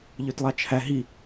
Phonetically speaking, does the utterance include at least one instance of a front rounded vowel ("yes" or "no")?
yes